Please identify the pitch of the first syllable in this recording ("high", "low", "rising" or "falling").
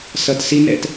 low